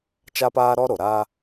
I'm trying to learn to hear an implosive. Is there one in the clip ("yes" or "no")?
no